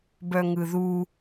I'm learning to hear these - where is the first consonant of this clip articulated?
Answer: lips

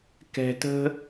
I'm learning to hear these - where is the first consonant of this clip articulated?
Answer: velum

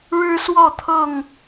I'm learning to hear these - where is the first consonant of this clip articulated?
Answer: retroflex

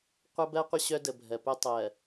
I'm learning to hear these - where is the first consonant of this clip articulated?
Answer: uvula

